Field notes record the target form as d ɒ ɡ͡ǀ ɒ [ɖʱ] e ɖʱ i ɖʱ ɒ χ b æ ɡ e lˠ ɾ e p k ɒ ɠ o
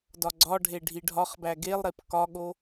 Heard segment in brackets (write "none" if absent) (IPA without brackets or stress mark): ɖʱ